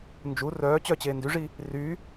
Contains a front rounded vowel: yes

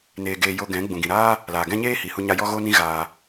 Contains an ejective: no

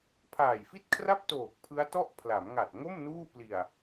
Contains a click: no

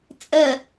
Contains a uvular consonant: no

